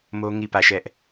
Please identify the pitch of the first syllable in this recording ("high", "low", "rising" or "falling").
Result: high